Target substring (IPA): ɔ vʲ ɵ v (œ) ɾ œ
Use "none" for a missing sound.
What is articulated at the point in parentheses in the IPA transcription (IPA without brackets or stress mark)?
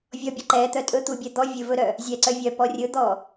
ɵ